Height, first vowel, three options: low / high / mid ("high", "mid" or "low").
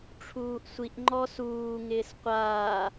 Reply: high